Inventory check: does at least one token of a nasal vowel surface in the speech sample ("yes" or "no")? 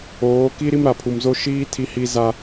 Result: no